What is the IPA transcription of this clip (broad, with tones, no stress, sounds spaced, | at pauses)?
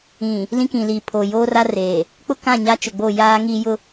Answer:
ĩ˨ | l ĩ˦ k ĩ˨ l iː˨ pʰ o˨ j oː˦ r a˦ r eː˨ | k͡p ʊ˦ k ã˦˨ ɲ a˦ t͡ʃ ʊ˨ ɡ͡b o˦˨ j aː˦ ŋ iː˦ j ʊ˦